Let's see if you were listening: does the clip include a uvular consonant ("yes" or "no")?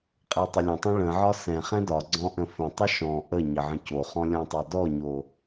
yes